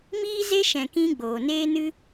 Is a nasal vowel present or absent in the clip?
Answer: present